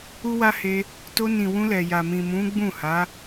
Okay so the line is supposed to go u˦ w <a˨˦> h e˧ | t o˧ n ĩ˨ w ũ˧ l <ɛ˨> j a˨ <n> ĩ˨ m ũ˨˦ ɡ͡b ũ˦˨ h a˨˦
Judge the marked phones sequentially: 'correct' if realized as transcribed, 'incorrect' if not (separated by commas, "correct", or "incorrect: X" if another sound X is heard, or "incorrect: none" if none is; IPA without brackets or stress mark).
incorrect: a˦, correct, incorrect: m